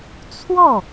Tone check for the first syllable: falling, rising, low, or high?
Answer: falling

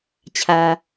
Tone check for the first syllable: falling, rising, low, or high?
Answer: low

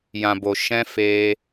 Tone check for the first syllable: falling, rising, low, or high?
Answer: low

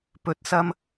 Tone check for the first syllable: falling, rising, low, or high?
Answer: rising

